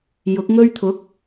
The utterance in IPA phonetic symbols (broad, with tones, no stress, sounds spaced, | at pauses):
j ʊ˨˥ k̚ ŋ ɵ˥ ɥ t̪ʰ ʊ˨˥ k̚